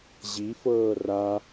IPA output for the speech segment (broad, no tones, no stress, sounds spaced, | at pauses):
ʑ i f ɤː r a